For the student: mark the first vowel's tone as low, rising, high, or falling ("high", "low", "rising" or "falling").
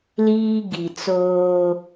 high